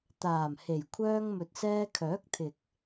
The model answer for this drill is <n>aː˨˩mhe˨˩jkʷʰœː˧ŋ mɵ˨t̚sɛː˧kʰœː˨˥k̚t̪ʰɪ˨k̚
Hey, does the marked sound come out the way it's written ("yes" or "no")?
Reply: no